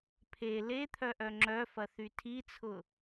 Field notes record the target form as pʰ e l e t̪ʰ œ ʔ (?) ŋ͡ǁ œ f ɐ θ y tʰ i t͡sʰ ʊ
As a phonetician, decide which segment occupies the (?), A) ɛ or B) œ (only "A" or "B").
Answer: B